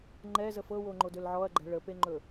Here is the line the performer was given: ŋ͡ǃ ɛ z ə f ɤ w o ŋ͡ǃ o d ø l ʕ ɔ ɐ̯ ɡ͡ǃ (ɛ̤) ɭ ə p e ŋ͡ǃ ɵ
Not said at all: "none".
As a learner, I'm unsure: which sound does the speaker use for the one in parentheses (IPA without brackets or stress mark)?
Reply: ɛ̤